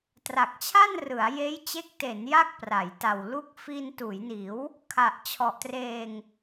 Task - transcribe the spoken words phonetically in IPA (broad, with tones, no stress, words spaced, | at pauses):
tra˨˩k̚t͡ɕʰa˥˩nrɯ˩˦a̯ jeː˦˥jt͡ɕe˦˥k̚te˩˦n ja˥˩k̚pra˩˦jta˨˩w lu˦˥k̚fiː˧n tuː˩˦jniː˩˦w | kʰa˨˩ʔt͡ɕʰɔ˨˩ʔtreː˧ŋ